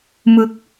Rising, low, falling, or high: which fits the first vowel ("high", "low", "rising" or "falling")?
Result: rising